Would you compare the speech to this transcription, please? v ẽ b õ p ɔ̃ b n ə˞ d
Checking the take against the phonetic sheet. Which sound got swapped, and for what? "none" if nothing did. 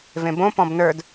none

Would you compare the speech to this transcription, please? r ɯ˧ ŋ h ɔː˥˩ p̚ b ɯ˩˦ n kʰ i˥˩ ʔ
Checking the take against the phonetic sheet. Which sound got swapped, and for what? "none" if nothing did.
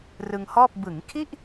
n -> ŋ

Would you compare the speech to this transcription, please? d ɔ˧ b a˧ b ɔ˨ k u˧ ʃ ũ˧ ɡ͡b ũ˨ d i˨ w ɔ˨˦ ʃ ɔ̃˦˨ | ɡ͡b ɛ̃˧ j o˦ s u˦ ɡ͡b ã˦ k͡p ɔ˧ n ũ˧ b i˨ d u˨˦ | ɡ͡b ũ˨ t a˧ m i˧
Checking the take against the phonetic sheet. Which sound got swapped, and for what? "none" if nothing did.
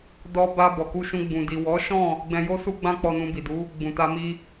none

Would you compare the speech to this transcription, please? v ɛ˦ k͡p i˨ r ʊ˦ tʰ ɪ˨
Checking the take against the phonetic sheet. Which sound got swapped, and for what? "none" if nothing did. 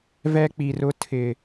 none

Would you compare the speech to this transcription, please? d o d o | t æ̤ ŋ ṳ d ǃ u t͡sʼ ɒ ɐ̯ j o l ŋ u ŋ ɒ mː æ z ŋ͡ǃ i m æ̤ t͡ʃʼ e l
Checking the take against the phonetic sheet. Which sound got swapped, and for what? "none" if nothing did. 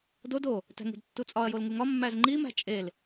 ǃ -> tː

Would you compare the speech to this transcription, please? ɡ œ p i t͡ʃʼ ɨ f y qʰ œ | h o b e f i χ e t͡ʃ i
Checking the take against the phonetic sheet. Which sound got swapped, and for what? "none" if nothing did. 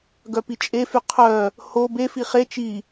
ɨ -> e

